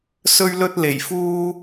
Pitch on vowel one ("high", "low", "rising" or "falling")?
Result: high